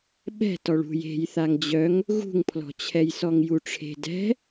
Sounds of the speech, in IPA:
ɓɛ̤ tɔɭṳj e̤j θaŋd͡ʑœŋ | ɣṳŋpʰlɔ̤ t͡ɕʰɛjsɔŋjuʈ͡ʂʰe̤ dɛ̤

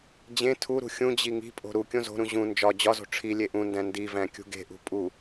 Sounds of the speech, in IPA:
d͡ʑẽ tʰuɾṳ xʲũd͡ʑi ŋi̤pʼo̤ ɾu kʲõzo̤ɾũ ʑũ nd͡ʒɒ d͡ʑɒzo̤ ʈ͡ʂʰilʲe ʔũndæ̃ ndivæ̃ kʲṳɡe̤ʔṳ pʼu

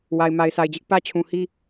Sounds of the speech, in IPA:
wa˨ɪ̯ma˨ɪ̯sa˨ɪ̯d͡ʑɪ˦ʔ pä˦t͡ɕʰũ˨hi˦

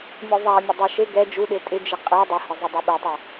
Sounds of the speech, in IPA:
mʲoðˤamʲʊ dˤɛʃe ɡɛ d͡ʒuɗe tʼɪd͡ʒɪ qʼɛ dˤɪhɪzˤʊ dˤɛɓɛtˤa

